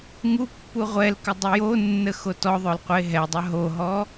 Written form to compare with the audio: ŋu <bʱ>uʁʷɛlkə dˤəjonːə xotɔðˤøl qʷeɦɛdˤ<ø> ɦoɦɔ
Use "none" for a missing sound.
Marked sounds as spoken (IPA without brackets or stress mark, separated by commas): pː, œ